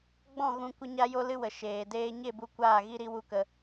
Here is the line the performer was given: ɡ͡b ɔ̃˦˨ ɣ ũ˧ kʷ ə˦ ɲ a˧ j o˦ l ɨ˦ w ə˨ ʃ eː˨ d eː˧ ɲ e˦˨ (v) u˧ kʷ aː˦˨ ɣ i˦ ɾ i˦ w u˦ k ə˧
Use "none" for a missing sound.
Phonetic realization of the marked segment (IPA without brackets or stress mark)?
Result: b